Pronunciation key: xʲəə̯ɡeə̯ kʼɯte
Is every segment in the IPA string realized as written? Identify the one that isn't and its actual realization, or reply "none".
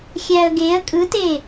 ə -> æ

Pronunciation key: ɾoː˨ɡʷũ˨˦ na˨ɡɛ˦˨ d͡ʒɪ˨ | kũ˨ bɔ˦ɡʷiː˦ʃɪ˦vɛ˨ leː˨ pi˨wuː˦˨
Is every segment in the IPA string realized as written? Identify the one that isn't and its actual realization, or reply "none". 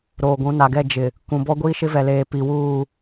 none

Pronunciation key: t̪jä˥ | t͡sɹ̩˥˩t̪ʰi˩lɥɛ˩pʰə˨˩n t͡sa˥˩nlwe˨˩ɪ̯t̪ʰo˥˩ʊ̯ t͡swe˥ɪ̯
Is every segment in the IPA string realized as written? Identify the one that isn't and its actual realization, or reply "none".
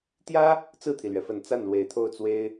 pʰ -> f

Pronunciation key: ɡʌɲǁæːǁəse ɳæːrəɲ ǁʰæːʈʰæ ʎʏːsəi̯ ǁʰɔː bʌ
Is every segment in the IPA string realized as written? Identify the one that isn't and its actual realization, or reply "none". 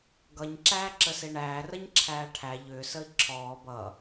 none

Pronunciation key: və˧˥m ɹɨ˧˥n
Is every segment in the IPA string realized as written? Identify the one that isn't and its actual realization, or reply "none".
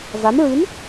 ə˧˥ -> a˧˥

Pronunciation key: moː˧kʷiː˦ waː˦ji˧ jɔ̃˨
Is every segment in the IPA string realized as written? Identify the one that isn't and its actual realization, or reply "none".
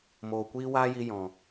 oː˧ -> oː˨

